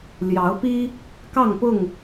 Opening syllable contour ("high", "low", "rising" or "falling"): rising